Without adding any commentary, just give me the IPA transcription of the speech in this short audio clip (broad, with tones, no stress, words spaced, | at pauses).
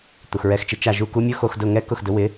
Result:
t̪u˩xɹɛ˧xt͡ʃɪ˧ t͡ʃa˥˩ʒu˥˩ku˥ mʲʊ˥xo˧xdʊ˥˩ŋɛ˥ kʊ˥˩xdʊ˩˥wɪ˩˥